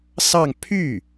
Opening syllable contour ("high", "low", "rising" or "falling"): falling